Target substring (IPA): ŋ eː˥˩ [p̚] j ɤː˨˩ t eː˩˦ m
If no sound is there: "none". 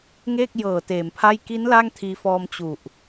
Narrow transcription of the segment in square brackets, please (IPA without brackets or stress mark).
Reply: k̚